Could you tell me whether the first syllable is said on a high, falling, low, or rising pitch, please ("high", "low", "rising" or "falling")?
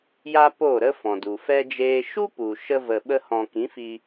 high